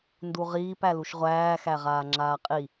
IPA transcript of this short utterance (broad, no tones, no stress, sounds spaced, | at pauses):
n d u ʁ iː p æ l u ʃ ʁʷ æː x æ ʁ aː ŋ͡ǁ aː qʼ i